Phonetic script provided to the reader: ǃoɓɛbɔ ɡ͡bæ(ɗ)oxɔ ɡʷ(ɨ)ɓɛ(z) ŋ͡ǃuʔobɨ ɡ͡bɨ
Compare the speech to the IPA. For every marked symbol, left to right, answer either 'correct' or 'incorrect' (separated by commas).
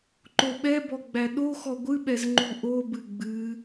correct, correct, correct